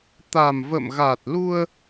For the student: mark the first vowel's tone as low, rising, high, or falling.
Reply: low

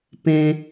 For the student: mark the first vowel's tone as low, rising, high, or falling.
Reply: high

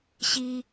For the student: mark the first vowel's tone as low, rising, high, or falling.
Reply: low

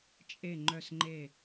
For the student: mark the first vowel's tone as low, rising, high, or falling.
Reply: falling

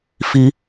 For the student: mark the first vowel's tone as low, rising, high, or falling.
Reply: high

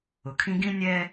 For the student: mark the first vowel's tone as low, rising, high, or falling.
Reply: low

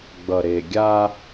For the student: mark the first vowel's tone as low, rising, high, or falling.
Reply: low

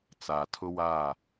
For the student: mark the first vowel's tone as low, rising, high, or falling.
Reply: low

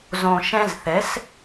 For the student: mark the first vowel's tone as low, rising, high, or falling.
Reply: low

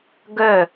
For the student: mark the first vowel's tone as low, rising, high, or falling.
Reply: falling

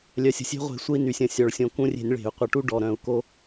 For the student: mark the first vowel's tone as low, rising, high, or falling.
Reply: low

